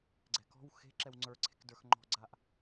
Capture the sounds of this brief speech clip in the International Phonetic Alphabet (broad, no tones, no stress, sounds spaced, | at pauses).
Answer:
ɡ͡ǀ ɛ̤ k ɔ̤ w x e̤ ǁ ɛ w ŋ͡ǀ ə˞ ǀʰ e̤ k d ə˞ x ŋ͡ǃ ɔ̤ ɡ͡ǀ a ʔ